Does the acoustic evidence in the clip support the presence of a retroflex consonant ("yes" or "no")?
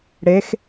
yes